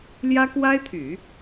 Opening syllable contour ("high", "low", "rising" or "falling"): high